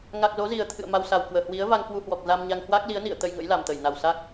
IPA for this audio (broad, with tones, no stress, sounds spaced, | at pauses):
ŋ a˨˩ k̚ z o˨˦ z i˨˩ ə̯ t̪ʰ ɨ̰˧˨ ə̯ m a˧ w s a˨˩ w k w əː˧˩ h w i˨˦ ə̯ v a˧ ŋ k w u˧ h w ɔ˨˩ k̚ z a˧ m ɲ a˧ ŋ h w a˦˥ k̚ l i˨˦ ə̯ n ḭ˧˨ ə̯ t̪ ə˧ j ŋ ə̰˧˥ j l a˨˩ m t̪ ə˧˩ j n a˨˩ w s a˦˥ k̚